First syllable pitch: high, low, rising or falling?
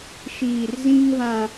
low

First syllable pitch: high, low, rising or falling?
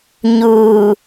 low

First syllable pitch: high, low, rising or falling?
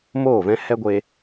falling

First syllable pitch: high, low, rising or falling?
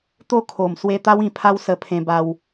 falling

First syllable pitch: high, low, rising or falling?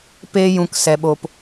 high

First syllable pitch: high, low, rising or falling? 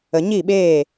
low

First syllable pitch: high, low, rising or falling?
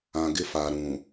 low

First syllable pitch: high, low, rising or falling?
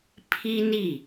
high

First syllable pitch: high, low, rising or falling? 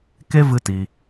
high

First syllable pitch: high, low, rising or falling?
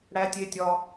high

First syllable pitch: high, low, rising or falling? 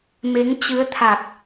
rising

